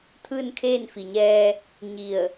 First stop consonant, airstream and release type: aspirated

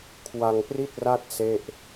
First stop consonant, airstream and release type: aspirated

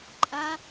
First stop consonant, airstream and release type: click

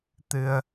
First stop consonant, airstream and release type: plain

